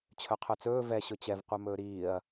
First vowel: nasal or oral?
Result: oral